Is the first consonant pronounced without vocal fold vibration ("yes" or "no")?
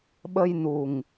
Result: no